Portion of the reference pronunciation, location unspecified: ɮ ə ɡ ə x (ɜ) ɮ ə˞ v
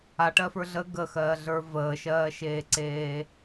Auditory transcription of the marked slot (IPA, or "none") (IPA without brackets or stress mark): ɜː